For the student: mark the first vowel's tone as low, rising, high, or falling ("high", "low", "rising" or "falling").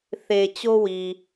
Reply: low